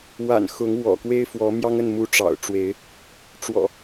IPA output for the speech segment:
wa̰˨˩n xʊ˨˦ŋ wɔ̰˨˩kwe˦ɪ̯fwɔ˨˦mjɑ˦ŋ ə˥˨nmu˨˦ ʈ͡ʂɑ̰˨˩ʊ̯ ʈ͡ʂwe˨˦ɪ̯ | ʈ͡ʂwɔ̰˨˩

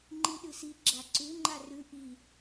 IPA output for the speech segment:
ŋ͡ǃiɗɨsi ɡ͡ǁaǀʉ ŋ͡ǃarʉ ʔi

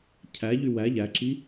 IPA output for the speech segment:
cʰæʎy wæ ʎæǁi

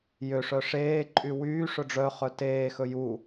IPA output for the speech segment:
jøʂœ ʂeːǃʼy wyː ʂɵɖ͡ʐœχœ teːxɵ ju

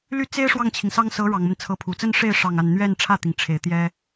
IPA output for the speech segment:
ly˥˩t͡se˥ɪ̯ ʂwɑ˥˩ŋt͡ɕʰi˩ŋsɑ˥ŋ sɤ˧˥ ɻɑ˨˩ŋmə˦n t͡sʰɤ˧˥pʰu˨˩ t͡sə˥nʂe˥˧ɪ̯ ʂɑ˥˧ŋa˥˧n n̪ɥɛ˥˧n ʈ͡ʂʰä˥˩t̪i˩ŋʈ͡ʂʰe˨˩ɪ̯ t̪jɛ˥

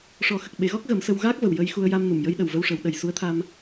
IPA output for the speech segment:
ʂɔ˨˩˦xə˨˩k̚ɓe˨˩˦ɣɔ˦˥k̚ ɣə˨˩˦msə˧w ɣaː˦˥k̚və˨˩w jə˧jxu˧ə̯ja˧mnu˨˩˨m jə˧˥j ɗə˨˩wvə˧wʂə˨˩˦wɗə˨˩j su˧˥ə̯t̪ʰa˧m

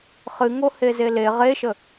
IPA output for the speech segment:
χɨŋo hezele ʁeʃə

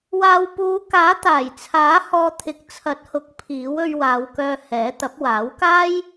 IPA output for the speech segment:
waː˨wpuː˨˧kaː˨˥ t̪aː˨˩jt͡sʰaː˨˥ hɔː˧ t̪ʰɪ˨˥k̚ t͡sʰɐ˨˥t̚hʊ˨˥k̚ pʰiː˨˥wɵ˧ɥwaː˨˧wkœː˧ hɛː˨˥ t̪ɐ˨˥p̚waː˨˥wkaː˥j

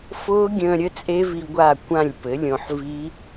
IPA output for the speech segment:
fʊː˦˥ɡʲə̃ː˧ ɾʲə˦˥t͡sʼe˦˥vi˧ ɡʷa˥˩kʷã˥˩lʲ pɘ˩˥lʲõ˧ħvi˦˥

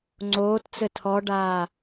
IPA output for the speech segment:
ŋ͡ǀoːtt͡sɘ tʰɔɖaː

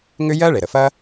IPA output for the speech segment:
ŋʏ˦ jɜ˦ɭe˩ɾə˩fɐ˦

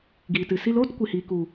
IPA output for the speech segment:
ɡiː˨tɨ˨si˦l oː˦tkʷi˨hiː˨ ku˨

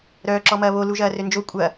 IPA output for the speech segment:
ɾœːǁɔmɐːβo luʒɐːrønd͡ʒo kʷʼɐ

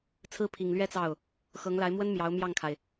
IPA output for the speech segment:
t͡sʰɹ̩˥pʰi˨˩ŋlɥɛ˥ t͡sɑ˥˩ʊ̯ | xɤ˧˥ŋla˧˥ɪ̯mwə˥n mjɑ˧˥ʊ̯ mjɑ˥˩ŋkʰa˩ɪ̯

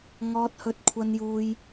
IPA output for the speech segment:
ŋɔː˥t̚hɵ˥t̚kʷʰɐ˥njuː˥j

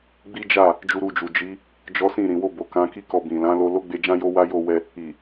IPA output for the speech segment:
ɡ͡bi˦ d͡ʒa˦˨ | d͡ʒu˧ɾu˧d͡ʒu˨ d͡ʒi˨˦ | d͡ʒɔ˦sĩ˦˨ ɾĩ˨wo˧bo˨ kã˨˦ki˦kɔ˧ bĩ˨ lã˨˦lo˧ lo˦ɡ͡be˧d͡ʒã˦jo˦ wa˦jo˦˨wɛ˧ | i˨

